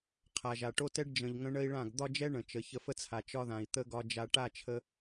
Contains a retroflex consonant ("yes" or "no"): yes